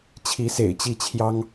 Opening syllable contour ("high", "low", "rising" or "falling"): rising